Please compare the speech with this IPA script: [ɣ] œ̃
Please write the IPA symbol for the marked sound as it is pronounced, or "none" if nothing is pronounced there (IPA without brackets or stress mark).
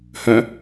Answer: h